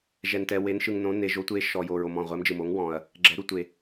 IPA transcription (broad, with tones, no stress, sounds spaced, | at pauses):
ʒ ɛ˨ n t ɛ˨ w e˨˥ n ʃ ɯ˨ ŋ n õ˨˥ n e˨ ʒ o˨˥ tʷ e˨˥ ʃ ɔ˨ j o˨ ɹ o˨ m ɔ̃˨ ʁʷ ɛ˨˥ m d͡ʒ ɯ˨ m o˨˥ ŋ w ɔ̃˨ ɐ̯ | ɡ͡ǁ ɛ˨˥ ɾ u˨ tʷ e˨